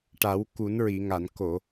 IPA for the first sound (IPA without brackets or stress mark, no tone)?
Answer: ʈ